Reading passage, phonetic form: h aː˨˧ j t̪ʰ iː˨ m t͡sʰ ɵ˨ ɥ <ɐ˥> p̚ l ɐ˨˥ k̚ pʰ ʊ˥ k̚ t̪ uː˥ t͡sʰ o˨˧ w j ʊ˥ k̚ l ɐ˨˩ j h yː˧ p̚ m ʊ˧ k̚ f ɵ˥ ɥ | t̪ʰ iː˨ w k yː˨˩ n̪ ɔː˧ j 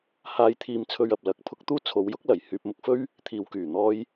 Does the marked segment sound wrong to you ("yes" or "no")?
yes